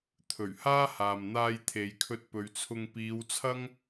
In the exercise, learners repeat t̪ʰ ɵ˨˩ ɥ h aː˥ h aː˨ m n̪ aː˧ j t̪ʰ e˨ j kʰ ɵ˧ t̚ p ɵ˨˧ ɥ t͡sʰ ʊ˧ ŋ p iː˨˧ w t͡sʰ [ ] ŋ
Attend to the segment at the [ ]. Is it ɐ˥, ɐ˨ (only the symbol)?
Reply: ɐ˥